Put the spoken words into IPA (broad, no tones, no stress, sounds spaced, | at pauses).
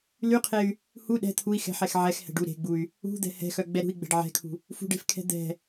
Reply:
l y qʰ e y̯ | h u ɗ ɛ̤ t̪ʰ u i̯ x ɛ̤ ħ ɛ x ʕ ɛ x h ɛ̤ ɖ u ɾ e̤ ɡ͡b u y̯ | ṳ d̪ ɛ̤ h ɛ̤ x œ ɡ͡b ɛ ɾ ṳ i̯ ɡ͡b ɛ̤ ɖ ʕ ɛ̤ kʰ ṳ | f ṳ ɖ e̤ f kʰ ɛ̤ d̪ ɛ̤